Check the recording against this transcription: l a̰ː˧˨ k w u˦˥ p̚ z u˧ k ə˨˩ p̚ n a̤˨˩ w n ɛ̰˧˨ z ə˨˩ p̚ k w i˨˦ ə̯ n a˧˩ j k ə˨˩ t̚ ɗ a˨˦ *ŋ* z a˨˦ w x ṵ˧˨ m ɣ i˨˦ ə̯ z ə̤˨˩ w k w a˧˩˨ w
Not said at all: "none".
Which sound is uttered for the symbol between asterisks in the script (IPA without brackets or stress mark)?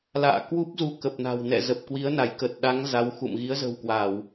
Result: ŋ